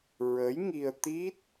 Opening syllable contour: rising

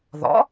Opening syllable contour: rising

